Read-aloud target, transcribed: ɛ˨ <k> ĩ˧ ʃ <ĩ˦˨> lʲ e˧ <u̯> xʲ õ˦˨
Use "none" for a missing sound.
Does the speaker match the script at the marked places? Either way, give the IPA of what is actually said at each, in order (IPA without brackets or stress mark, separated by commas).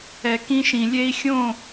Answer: k, ĩ˨, i̯